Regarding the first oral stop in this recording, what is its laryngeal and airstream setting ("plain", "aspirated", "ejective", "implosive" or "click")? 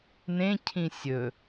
aspirated